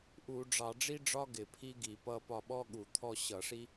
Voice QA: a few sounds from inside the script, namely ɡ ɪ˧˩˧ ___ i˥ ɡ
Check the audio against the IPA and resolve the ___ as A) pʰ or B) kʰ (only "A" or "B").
A